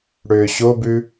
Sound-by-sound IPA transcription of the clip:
ɽʏːɕobʉ

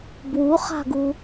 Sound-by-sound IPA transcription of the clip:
bwuχa̤ɡu

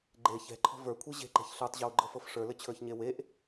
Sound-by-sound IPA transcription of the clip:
ɡ͡ǃe çɛ̤ǃʰɔ̤ və˞kʷʰe ʑe̤ǃɛ̤ç ɬə˞tˤʑə˞wɡ͡ǃɤfɤf ʂə˞lɘt͡ɕʰə˞çɲe weʔ

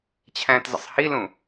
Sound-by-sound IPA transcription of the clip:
t͡ɕʰæ̃ːtzə̰sˤhilũ

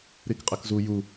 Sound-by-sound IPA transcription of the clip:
ɾikqʼɘkzu ju

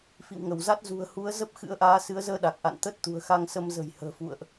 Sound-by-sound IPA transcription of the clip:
fḭ˧˨wŋə˧˩wza˦˥t̚ zṳ˨˩ə̯hu˨˦ə̯ zə˦˥p̚xɨ̰˧˥ə̯ʔaː˨˦ sɨ˨˦ə̯zəː˧ɗa˨˩k̚ʔa̰˧˨n t̪ə˦˥t̚t̪ṳ˨˩ə̯xa˧ŋsə˧m zə̤˨˩j hə̤ː˨˩fṵ˧˨ə̯ʔ

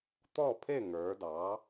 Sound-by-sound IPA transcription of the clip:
t̪ɔ˥˨pʰe˥˨ ŋə˞˩˧ dɑ˩˧

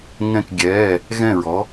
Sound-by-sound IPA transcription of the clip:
ŋɛ̃˧˩kɡʲɛː˩˧˩ | ɣɛ̃˧˩ɹɔ˩˧

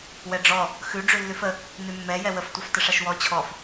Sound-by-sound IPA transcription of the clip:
wɛɖ͡ʐɔ | xʉ ɖ͡ʐʉlːʉfə | nʉmːɛ jɛwəf tʷaftəʂaʃwɔ t͡ɕʰɔf

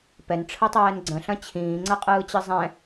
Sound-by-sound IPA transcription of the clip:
pɛnʈ͡ʂʰɯtˤɛːn ɡ͡ǀə̃ɬɐ̃ t͡ɕʰĩːŋ͡ǀɐqʼɯːt͡ɕɨ zˤɛ̃

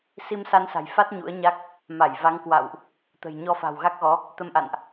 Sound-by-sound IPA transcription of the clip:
si˧msa˧nsa̤˨˩jfa˦˥t̚ ɲṵ˧˥ə̯ɲa˦˥k̚ | ma˧˩jva˨˦ŋ kwa̰˧˨wʔ | t̪ə̤˨˩jɲɔ˧fa̤˨˩w ɣa˦˥k̚ɣɔ˨˦ | t̪ə˧mʔa̰˧˨nʔ

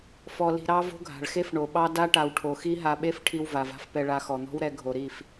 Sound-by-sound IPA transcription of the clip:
fɔ˧li̤˧ɾɑ˦vo̤˦ ɡʱa̤˨ɭxe˦fɳo˨ɓɑ˦ da˦ʈa˨w ʈʰo˨xi˦ɦa˧ɓe˦f ʈʰi˧wva˨va̤˧f pɛ˧ɭa˧xɔ˨n̪ɔ̤˦w ɾɛ˧ɡʱo˨ɾi˦˨f

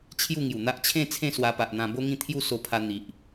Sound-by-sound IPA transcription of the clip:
t͡ɕʰju˥˧ŋju˨˩n̪a˦ʔ t͡ɕʰẽ˥˧ t͡sʰẽ˥˧swa˧pa˨ʔn̪ã˧ bo˦ŋĩ˥˧ t̪ʰju˥˧so˧pʰa˧ n̪i˨ʔ

